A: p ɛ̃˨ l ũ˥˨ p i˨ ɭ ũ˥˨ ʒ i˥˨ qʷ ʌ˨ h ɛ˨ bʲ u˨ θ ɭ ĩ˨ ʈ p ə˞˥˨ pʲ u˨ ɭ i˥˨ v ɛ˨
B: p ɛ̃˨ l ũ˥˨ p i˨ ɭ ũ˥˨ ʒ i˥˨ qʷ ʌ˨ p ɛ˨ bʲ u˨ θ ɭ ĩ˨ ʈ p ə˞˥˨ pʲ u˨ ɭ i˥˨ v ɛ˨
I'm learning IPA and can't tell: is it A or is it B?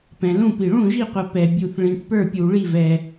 B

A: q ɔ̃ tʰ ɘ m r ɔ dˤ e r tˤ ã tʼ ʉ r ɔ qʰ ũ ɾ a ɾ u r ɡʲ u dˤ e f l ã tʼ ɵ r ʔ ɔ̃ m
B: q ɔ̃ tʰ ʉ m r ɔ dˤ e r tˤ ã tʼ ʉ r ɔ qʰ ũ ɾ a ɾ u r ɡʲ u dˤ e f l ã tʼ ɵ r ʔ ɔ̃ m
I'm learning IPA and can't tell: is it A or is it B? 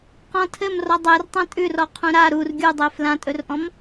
A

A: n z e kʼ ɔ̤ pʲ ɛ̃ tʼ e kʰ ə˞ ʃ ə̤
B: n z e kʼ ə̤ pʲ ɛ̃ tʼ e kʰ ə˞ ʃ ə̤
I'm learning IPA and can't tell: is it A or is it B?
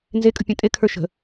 B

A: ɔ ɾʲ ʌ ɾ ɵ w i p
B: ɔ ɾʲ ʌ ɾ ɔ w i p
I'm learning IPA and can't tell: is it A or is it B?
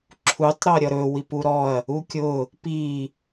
A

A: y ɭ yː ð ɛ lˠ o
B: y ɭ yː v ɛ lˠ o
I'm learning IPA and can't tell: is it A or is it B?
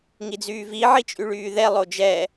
A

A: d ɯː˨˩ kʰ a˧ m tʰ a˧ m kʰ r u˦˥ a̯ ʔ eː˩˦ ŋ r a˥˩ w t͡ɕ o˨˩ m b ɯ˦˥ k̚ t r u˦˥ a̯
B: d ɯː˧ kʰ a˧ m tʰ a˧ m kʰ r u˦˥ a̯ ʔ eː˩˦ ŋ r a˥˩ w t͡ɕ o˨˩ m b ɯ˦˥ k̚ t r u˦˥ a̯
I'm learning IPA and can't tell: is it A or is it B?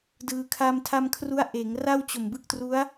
B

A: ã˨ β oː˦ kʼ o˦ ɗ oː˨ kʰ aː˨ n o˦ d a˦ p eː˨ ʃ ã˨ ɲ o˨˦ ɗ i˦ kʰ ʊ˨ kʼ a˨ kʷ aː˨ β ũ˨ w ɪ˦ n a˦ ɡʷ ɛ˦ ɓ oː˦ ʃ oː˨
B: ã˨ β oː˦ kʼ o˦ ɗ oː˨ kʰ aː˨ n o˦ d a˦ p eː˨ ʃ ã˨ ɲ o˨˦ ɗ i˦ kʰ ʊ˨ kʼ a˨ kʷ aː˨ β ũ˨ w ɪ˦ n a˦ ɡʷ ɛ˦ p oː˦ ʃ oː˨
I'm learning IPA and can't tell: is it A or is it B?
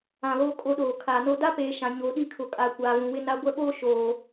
A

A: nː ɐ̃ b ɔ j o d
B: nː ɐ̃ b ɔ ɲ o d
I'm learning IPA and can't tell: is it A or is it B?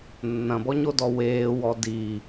B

